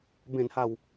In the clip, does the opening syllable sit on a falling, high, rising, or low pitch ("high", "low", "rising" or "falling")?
low